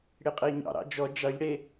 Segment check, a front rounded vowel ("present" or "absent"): absent